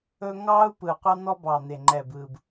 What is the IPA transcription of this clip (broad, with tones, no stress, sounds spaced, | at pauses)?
ɵ˥ ŋ ɑː˥ u̯ p ɯ˨˩ qʷ ɑ˥ n̪ ɔ˥ b ɑː˨˩ n̪ e˨˩ ŋ͡ǃ ɛː˨˩ b ɯː˨˩ b